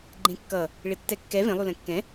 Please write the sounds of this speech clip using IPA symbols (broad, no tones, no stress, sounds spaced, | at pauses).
ɡ͡ǃ ẽ kː ʌ | ɭ ɪ tː ɛ kː ɛ v ẽ lˠ u l ɛ̃ kː ɛ̃